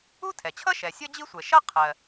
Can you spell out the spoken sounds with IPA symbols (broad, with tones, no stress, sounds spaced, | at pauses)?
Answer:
u˥ tʰ ɛ˩ t͡ɕʰ ʌ˥ ʃ ɛ˩ sʲ ʌ˥ d͡ʑ i˥ sʷ ɛ˩ ʃ ʌ˥ qʰ ɜ˩